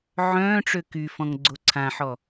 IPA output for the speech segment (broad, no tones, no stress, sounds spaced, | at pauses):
ʕ œ̃ː ʈ͡ʂ ø k y f ɔ̃ ŋ ɡ͡ǀ o ǀʰ ã ħ ɔ